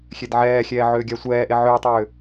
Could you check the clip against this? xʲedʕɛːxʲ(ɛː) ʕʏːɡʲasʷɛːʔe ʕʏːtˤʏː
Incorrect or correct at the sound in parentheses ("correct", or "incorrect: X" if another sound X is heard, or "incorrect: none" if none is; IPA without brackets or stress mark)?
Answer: correct